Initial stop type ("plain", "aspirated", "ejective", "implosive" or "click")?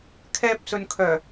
aspirated